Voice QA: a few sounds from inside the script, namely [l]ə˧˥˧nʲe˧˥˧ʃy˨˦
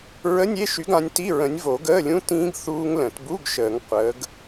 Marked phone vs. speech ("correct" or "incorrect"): incorrect